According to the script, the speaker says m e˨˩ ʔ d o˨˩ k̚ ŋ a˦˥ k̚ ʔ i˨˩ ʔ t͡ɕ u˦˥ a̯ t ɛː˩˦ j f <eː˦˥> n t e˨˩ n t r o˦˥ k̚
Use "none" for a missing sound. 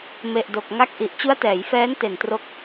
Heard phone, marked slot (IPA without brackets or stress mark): ɛː˦˥